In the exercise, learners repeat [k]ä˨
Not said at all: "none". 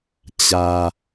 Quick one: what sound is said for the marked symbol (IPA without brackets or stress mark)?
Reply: t͡ɕ